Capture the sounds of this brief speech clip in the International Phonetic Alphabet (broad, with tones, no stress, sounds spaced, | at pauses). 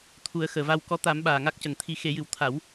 t̪ʰ u˨˩˦ ə̯ x əː˨˩ v a˧ w k ɔ˧˥ t̪ a˨˩˦ m ɓ aː˨˩ ŋ a˦˥ k̚ c ə˨˩ ŋ t̪ʰ i˨˩˦ x e˨˩˦ j ɨ˨˩ w t̪ʰ a˨˩˦ w